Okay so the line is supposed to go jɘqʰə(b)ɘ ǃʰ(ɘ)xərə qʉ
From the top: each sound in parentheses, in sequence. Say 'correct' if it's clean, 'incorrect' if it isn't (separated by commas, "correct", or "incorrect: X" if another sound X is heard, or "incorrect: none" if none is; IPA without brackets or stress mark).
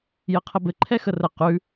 correct, incorrect: ɛ